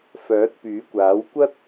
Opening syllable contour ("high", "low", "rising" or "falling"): rising